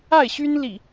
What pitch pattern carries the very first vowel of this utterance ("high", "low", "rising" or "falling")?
falling